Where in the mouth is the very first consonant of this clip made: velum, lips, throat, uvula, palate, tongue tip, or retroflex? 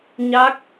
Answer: palate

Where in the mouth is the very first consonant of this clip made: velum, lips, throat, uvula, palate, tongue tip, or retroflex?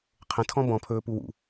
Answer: uvula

